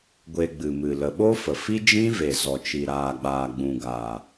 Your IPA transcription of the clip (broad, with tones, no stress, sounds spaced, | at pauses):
ɡʷ e˧ ɡ͡b ɨ˨ m ɨ˨ l ə˨ ɓ o˦ f ə˨ f i˦ d͡ʒ ĩ˦ v e˨ z ɔ˨ t͡ʃ i˨ ɾ aː˨ ɡ͡b aː˨ ɡ͡b ũ˨ ɡ aː˨